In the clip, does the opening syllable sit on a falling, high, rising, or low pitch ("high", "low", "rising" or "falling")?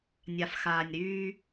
low